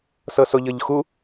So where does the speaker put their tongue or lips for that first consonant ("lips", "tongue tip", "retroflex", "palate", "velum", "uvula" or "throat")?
tongue tip